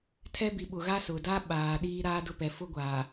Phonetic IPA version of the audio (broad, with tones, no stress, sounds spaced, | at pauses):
tʰ ɛ˦ b i˨ ɓ ʊ˨ ɣ a˦ s ʊ˨ d a˦ ɓ aː˨ ɗ iː˦ ɾ aː˦ d ʊ˦ p ɛ˨˦ f ʊ˦ ɡʷ a˨